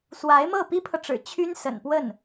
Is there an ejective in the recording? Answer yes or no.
no